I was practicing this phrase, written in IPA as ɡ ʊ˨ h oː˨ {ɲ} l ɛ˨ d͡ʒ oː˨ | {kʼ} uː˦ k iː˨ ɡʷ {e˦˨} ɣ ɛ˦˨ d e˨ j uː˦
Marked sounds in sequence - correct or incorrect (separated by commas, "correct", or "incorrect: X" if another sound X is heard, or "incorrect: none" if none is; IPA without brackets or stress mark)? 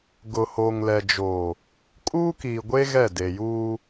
incorrect: ŋ, correct, incorrect: e˦